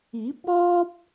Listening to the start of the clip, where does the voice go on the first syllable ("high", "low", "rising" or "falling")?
rising